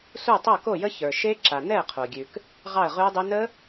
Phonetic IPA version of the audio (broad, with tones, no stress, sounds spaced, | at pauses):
s u˥˨ tˤ o˥˨ k o˥˨ j ə˦˥ ç ə˞˩ ʃ e˦˥ ǁ a˩ n ɛ˥˨ ə̯ qʰ o˩ ɡʲ ʉ˩ k | ʁ ɑ˥˨ ə̯ ʁ ʉ˦˥ ʊ̯ dˤ ʉ˦˥ n ə˦˥